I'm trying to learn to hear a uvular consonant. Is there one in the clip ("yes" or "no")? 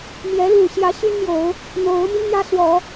no